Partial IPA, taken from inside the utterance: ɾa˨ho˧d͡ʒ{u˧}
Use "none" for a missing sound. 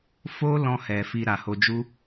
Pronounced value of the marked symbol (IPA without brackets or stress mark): u˦